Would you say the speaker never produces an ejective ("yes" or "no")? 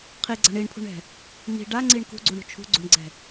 yes